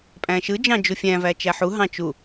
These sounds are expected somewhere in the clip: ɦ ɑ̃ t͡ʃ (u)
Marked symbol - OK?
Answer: yes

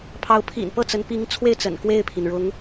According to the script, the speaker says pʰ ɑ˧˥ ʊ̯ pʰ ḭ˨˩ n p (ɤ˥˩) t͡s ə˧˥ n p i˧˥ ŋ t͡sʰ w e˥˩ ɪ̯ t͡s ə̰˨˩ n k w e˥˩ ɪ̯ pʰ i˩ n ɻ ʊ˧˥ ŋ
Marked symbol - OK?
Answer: yes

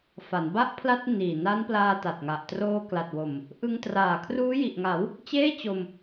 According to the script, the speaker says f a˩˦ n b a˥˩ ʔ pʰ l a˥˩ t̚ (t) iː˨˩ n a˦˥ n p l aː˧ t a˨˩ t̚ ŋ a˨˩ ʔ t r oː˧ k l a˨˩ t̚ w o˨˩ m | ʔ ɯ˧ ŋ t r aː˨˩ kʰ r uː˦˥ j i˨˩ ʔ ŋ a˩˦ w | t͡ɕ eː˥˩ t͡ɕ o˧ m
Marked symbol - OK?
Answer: no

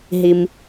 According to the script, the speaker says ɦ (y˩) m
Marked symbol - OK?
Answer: no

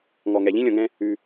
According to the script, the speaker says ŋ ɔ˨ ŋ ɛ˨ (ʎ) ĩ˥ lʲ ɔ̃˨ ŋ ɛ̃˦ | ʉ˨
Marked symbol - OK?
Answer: yes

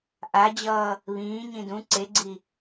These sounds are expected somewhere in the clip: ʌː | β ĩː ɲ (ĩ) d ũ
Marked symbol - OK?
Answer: yes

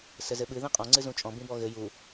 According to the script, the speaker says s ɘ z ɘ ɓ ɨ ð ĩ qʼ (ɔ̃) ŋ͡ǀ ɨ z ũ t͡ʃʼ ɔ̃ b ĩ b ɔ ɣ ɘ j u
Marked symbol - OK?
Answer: yes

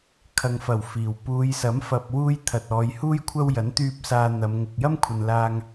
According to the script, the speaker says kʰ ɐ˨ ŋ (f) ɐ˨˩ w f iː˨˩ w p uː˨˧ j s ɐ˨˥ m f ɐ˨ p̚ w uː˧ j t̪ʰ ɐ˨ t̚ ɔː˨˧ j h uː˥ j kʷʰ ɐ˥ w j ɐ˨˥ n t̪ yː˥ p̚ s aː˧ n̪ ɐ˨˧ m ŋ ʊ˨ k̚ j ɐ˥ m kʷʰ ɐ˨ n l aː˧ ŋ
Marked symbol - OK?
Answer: yes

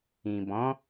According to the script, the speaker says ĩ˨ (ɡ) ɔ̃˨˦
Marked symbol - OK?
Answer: no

